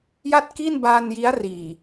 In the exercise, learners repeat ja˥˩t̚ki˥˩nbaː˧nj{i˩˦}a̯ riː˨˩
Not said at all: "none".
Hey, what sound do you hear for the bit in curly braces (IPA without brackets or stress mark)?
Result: i˦˥